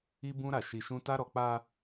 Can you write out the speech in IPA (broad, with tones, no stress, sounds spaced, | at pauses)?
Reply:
i˦ b ũ˦ ɾ a˦˨ ʃ i˧ ʃ ũ˦ t a˦ ɾ ɔ˧ k͡p a˧